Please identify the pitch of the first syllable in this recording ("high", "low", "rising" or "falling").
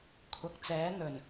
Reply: low